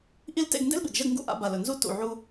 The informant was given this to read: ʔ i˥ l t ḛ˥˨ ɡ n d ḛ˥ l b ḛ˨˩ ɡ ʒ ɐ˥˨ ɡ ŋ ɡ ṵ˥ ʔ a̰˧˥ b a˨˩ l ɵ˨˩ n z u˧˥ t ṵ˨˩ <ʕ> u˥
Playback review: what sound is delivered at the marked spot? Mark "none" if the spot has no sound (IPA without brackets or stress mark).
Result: ʕ